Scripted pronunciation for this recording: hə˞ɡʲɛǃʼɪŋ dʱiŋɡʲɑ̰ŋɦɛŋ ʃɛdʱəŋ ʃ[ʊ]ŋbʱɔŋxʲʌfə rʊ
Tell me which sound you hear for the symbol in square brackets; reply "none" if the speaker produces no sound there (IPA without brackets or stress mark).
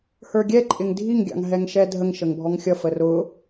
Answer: ə